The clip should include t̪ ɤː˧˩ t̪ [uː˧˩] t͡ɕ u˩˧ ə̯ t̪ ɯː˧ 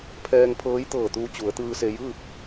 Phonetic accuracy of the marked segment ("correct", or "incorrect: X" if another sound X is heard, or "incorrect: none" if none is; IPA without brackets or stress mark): incorrect: uː˧